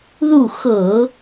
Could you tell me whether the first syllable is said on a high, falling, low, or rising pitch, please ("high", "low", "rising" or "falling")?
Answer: falling